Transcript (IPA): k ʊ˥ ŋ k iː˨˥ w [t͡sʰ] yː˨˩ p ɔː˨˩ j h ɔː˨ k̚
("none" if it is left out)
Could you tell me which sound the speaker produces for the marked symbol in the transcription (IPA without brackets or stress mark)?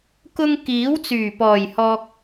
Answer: t͡s